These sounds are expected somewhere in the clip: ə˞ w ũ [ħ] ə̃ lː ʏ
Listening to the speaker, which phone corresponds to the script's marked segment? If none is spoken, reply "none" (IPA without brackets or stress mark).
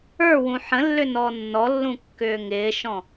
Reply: ħ